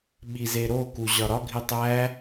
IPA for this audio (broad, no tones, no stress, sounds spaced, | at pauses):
ɓ i z e ɾ o k u ʑ ɒ ɾ ɒ ɡʱ i tˤ æ